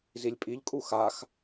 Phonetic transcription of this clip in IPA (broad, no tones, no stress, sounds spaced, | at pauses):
z i lʲ pʼ i ʎ kʼ u x a x